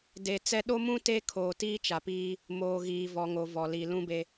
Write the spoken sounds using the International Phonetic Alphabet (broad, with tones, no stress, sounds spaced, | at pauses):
d e˨ t͡s ɛ˦ ɗ o˦ m ũ˦ t e˦ kʰ oː˨ t iː˦ t͡ʃ a˨ p iː˦ | m oː˨ ɣ iː˨ v ɔ˨ ŋ o˨ v ɔ˨ l i˨ l ũ˦ b e˦